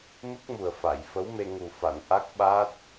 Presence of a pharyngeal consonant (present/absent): absent